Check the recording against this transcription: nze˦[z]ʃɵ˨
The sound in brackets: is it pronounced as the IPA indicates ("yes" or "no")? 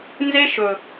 no